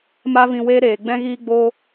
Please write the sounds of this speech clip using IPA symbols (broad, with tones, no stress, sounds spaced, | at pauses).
m a˦ v ĩ˧ w eː˦ ɾ eː˨ ɡ͡b ɛ̃˦ ɣ iː˦ ɡ͡b oː˦